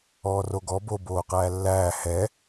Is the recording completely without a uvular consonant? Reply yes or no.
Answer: no